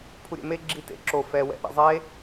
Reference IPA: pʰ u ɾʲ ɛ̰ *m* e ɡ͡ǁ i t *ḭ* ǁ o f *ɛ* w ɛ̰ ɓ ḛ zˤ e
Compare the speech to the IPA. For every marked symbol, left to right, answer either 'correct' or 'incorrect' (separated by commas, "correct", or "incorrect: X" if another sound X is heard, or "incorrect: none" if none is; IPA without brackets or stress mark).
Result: correct, incorrect: ḛ, correct